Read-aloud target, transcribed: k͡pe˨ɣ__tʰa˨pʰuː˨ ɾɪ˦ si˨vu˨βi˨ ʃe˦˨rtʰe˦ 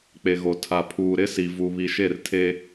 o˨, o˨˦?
o˨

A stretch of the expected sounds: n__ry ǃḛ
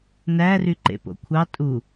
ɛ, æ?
æ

